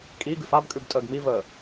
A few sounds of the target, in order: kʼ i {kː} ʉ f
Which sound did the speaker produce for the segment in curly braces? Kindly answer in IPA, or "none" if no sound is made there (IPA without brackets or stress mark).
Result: ɡ